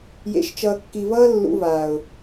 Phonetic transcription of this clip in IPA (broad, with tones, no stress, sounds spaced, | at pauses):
j ḛ˨ ʃ t͡ʃ ʌː˨ kː i˨ v ʌː˦ lː ṵ˦ v aː˨ ʊ̯